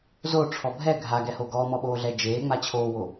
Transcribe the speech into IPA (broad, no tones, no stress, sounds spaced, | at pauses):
z o ʈ͡ʂʰ ɔ bʱ ɛ ɡʱ a ɡ ɛ h o ɡ ɔː m ɔ ɓ oː ɮ ɛ d͡ʒ eː ŋ͡m a t͡ɕʰ oː w o